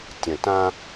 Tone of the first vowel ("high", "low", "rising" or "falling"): low